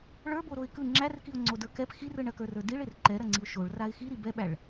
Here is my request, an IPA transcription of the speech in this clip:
ɭ ə˞ b o ɾ o ɪ̯ k ɯ ŋ͡ǁ æ r k i ʊ̯ ŋ͡ǀ o d ə˞ k ɛ p x i r ɯ ɳ ɐ k ə˞ r ə˞ d i ɭ e r ǃ ɛ ɾ ɐ ŋ͡ǀ i ʊ̯ ʃ o ɭ r a ɪ̯ x i ɾ i b ɛ ɓ æ ɭ

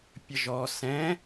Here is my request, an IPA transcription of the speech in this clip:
pʲ ə ʒ ɔ s ɛ̃

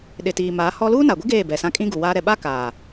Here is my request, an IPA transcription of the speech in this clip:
ɗ ɪ˨ t iː˨ m a˨˦ h ɔ˦ l uː˦ n a˨ ɡʷ i˦ ɡ eː˦˨ b ɛ˨ s ã˦ kʼ ĩ˦ ɡ u˨ w aː˦ ɾ ɛ˨ ɓ a˦ k aː˨

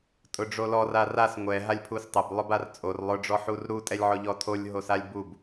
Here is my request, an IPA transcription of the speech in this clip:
tʼ ʊ ɖ͡ʐ o l ɔ r a r a s ŋʷ ɛ ɦ a lʲ pʰ u s tˤ ɛ b lˠ ʊ b a r t͡sʼ o r lˠ ʊ ɖ͡ʐ ɔ ħ u r ɾ u tʼ ɛ lʲ ʕ ɔ ʎ ɔ tʰ o lʲ ɦ o s a lʲ b u b

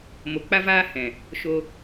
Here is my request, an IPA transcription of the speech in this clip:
m o˧ k͡p a˦ v aː˦ h ɛ̃˨ | ʃ o˧

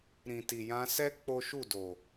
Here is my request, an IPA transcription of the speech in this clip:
ɾ ĩ˨ t i˨ j ã˧ s ɛ˦ k͡p o˦ ʃ u˦˨ d o˨

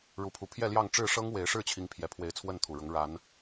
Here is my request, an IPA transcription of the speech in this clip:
ɻ u˨˦ pʰ u˨˦ pʰ j ɛ˥˨ l j ɑ˥˨ ŋ ʈ͡ʂ ɻ̩˥˨ ʂ ɤ˦ ŋ w e˨˦ ɪ̯ ʂ ɻ̩˥˨ t͡ɕʰ i˨˦ ŋ pʰ j ɛ˨˩ pʰ w e˨˦ ɪ̯ t͡sʰ w ə˥˨ n t̪ʰ u˨˩ ɻ ʊ˨˦ ŋ ɻ a˨˦ n

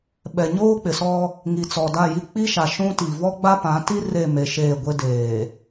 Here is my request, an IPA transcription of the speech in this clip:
ɓ ɛ˨ ɲ oː˦ k͡p ɪ˨ s ɔ˦ | ŋ i˨ t͡s ɔ˨ d a˦˨ j i˦ k͡p i˦ ʃ a˨ ʃ ũ˦ t i˨ v ɔ˦ ɡ͡b a˦ p ã˨˦ t i˦ r e˦˨ m e˨ ʃ eː˦˨ ɡʷ e˦ d eː˨

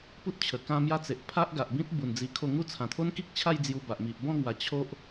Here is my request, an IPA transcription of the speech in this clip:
p u˦ t̚ t͡ɕʰ ə˨˩ k ã˦ m j a˦ t͡s e˨ ʔ pʰ a˦ ʔ ɡ a˨ ʔ b ĩ˦ t̚ b u˨˩ n d͡z i˧ kʰ o˥˧ ŋ u˥˧ t͡sʰ ã˨˩ t̪ʰ o˦ n k i˦ k̚ t͡ɕʰ a˥˧ j d͡z j u˧ b a˨ ʔ m i˨ ʔ b ɔ̃˥˧ ŋ w a˨˩ t͡ɕʰ o˦ ʔ

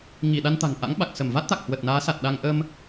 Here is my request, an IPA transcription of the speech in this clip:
ŋ i˧˩ ɗ a˧ n t̪ a̤˨˩ ŋ ʔ a̰˧˥ ŋ ɓ a˨˩ k̚ s ə˧˩ m v a˦˥ t̚ t̪ a˨˩ k̚ h w ə˨˩ t̚ n aː˨˦ s a˨˩ t̚ ɗ a˧ ŋ ʔ ə˧ m

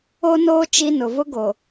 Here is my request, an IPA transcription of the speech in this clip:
o˦ n oː˦ t͡ʃ i˦ n ʊ˨ v ʊ˦ ɡ o˨

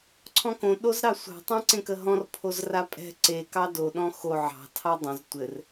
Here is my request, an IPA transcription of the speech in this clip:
ǀʰ ɔ̃ k õ ɗ o z ɾ ɑ sʷ ɑ̤ tˤ ã ǀ ẽ k ə ɦ ɔ̃ r pʰ o z r a pʼ ɛ̤ ǀ e k ɑ d o ɗ ɔ̃ x o ʕ ɑ̤ tʰ ɑ dˤ õ z tʷ ɘ r

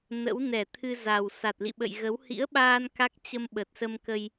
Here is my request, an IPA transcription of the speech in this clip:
n ə̰˧˥ w n ɛ˧˩ t̪ʰ ɨ˧ z a˨˩ w s a˨˩ t̚ l ḭ˧˨ ɓ ə̰˧˨ j ɣ ə˨˦ w h ḭ˧˥ ə̯ ɓ aː˧ n k a˦˥ k̚ t͡ɕ ə˧ m ɓ ə˨˩ t̚ s ə˧ m k ə˧ j

